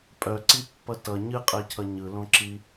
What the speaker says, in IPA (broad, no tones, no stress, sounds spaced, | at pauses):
pʼ œ ǀ i pː ʌ t ʌ ɲ ɨ qʼ ɛ cʰ ʌ ɲ ɯ l õ ǁ i